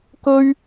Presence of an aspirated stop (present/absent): absent